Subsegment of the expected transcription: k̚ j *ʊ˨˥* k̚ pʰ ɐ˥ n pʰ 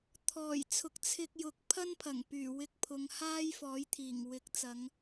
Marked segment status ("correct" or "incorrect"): correct